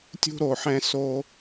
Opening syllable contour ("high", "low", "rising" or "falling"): high